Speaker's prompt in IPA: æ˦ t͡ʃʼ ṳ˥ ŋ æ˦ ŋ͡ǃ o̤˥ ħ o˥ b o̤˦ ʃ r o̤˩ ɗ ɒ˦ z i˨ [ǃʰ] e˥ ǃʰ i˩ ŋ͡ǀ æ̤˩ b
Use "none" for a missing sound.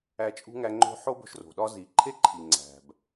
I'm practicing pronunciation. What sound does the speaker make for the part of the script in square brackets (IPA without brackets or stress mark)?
ǃʰ